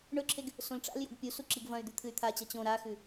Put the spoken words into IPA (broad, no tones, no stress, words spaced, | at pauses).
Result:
ɳɵǁʰeɡ | sõlʈ͡ʂa̰ljo̰ɡ pʲusu ǁiɡvɐ̃y̯d̪ʉ t̪ʰɨy̯t̪ʰat͡ɕɐ t͡ɕõ ɾaxʉ